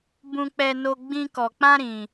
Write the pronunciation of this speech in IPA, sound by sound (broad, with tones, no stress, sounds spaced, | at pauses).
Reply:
b ũ˦ k͡p ɛ˦ n o˦ ɡ͡b ĩ˦ k ɔ˧ k͡p ã˦ ɾ ĩ˧